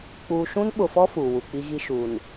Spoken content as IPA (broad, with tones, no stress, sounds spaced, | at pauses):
k͡p uː˨ ʃ ũ˦ n ɓ ʊ˨ f ɔ˦ f uː˨ w u˨ k͡p i˦ ɣ i˦ ʃ uː˨ n